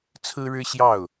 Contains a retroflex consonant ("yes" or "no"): yes